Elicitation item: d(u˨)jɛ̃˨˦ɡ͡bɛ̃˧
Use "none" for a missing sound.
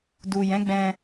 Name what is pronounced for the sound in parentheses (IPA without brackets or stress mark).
u˨